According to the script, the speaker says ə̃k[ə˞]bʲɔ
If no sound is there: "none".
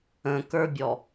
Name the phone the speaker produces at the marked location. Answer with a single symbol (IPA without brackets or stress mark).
ə˞